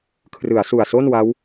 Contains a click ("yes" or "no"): no